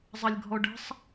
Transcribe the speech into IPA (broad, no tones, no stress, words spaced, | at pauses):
zˤɐlʲɡʱɔɖə̤sˤ